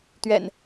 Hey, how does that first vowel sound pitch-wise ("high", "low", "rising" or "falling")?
low